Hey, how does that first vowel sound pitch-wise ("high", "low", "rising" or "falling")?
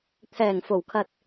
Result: low